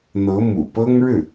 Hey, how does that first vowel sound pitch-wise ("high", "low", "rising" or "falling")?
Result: rising